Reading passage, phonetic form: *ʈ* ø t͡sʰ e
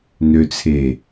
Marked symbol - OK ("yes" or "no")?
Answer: no